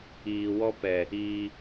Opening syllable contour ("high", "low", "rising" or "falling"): low